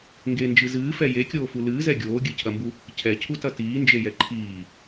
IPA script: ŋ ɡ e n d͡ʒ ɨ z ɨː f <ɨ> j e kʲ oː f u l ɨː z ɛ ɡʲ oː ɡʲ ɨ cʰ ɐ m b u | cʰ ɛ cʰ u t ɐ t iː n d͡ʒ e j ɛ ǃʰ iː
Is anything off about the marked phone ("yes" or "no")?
yes